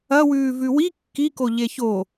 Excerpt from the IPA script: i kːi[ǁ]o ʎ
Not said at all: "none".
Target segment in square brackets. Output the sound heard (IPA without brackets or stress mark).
k